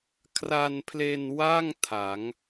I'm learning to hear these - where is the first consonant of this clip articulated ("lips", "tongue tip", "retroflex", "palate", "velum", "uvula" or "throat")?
velum